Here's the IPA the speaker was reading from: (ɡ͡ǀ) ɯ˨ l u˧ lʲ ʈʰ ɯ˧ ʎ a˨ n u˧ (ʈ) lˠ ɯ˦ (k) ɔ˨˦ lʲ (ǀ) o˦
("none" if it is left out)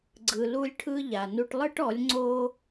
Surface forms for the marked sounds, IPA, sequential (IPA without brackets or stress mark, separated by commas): ɡ͡ǀ, ʈ, ʈ, ŋ͡ǀ